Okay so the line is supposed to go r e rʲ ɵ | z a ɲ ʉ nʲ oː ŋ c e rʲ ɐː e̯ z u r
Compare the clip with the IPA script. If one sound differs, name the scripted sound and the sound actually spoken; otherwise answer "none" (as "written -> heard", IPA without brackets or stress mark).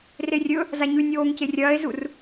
none